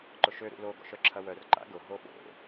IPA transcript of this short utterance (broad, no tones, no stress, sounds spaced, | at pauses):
ǃ ʊ ʃ ø ɾ ṵ l o ɡ ɔ̰ ʃ œ ǁʰ ɐ w œ r ǃ a̰ ɡ ʊ ɦ o ɓ o̰